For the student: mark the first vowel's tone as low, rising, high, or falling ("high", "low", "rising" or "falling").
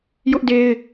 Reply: high